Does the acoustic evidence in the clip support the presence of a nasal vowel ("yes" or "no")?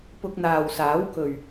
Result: no